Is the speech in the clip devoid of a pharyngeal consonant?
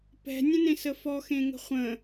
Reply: yes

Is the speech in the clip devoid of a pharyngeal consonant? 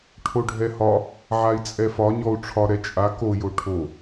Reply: no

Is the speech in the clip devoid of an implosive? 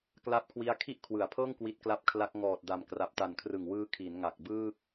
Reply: yes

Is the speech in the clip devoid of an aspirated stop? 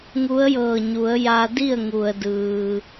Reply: yes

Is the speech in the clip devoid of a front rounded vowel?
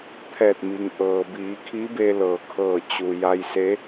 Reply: yes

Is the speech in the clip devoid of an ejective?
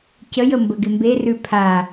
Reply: yes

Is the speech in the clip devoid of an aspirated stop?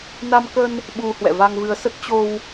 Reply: yes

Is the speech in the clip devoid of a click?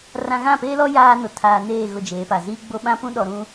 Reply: yes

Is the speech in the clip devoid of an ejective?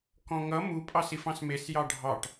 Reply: no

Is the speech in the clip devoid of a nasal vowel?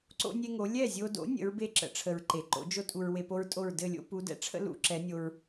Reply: yes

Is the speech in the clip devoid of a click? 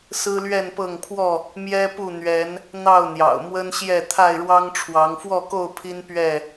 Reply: yes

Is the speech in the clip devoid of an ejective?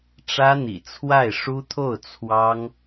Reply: yes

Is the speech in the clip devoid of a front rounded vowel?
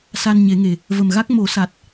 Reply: yes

